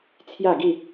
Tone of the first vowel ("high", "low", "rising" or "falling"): falling